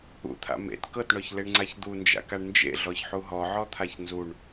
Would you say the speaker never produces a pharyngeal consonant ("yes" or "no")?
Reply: no